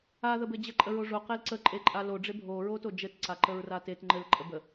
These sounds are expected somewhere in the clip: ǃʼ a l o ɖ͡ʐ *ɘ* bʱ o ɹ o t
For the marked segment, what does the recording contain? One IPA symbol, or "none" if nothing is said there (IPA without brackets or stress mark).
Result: e